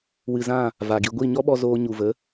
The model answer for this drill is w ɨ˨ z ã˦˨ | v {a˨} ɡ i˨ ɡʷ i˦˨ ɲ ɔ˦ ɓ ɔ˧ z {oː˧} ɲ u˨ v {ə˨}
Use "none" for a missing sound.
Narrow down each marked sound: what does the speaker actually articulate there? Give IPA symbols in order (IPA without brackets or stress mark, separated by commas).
a˨, oː˧, ə˨˦